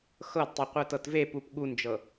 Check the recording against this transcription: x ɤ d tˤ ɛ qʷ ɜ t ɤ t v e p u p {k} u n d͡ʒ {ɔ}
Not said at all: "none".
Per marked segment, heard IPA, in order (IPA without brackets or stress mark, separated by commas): ɠ, ɤ